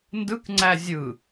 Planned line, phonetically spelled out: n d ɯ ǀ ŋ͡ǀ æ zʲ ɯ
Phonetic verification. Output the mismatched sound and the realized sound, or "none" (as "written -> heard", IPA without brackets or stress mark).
ǀ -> k